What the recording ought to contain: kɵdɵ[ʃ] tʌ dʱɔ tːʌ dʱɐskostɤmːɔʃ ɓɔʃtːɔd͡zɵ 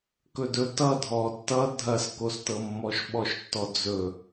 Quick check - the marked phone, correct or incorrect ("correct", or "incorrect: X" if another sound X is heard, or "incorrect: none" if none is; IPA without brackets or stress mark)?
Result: incorrect: none